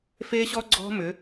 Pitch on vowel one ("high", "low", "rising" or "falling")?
high